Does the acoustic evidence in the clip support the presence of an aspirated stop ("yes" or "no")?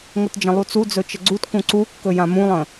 no